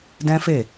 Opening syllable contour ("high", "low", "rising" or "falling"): high